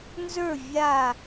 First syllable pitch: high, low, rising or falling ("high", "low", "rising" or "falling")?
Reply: falling